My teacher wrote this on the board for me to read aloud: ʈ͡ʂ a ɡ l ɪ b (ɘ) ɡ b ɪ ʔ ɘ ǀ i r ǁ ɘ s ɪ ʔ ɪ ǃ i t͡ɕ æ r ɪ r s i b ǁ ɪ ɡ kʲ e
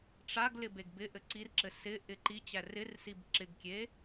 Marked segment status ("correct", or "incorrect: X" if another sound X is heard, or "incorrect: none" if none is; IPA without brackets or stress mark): incorrect: e